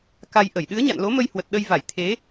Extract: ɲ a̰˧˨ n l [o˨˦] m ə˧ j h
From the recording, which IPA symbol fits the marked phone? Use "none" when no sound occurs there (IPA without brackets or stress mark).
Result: o˨˦